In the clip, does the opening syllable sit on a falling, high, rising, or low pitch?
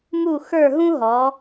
falling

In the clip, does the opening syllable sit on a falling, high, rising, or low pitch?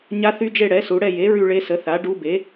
rising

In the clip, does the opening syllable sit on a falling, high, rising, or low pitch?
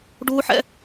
high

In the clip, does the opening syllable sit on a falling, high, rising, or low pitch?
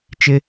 high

